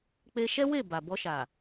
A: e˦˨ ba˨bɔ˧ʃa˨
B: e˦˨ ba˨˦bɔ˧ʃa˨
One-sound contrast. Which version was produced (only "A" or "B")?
A